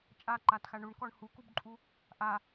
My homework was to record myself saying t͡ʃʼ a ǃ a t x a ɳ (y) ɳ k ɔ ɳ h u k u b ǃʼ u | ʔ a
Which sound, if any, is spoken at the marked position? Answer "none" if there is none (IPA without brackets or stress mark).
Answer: u